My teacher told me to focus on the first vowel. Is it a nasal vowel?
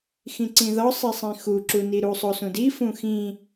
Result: yes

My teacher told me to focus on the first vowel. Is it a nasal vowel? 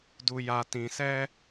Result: no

